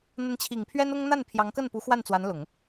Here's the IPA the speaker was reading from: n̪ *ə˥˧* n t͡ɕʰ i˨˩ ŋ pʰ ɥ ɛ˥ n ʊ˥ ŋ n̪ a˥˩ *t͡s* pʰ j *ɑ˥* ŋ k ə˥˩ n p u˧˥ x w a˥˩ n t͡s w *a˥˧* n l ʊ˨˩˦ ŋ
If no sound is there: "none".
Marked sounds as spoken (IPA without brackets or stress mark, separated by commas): ə˧˥, n, ɑ˧˥, a˧˥